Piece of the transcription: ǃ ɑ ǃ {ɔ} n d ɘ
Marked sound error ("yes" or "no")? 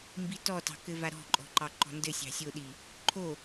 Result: yes